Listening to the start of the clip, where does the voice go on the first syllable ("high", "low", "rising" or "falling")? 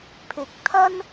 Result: low